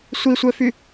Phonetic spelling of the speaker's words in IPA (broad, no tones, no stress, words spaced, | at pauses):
sʷisʷœfy